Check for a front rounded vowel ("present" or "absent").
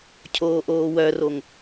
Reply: present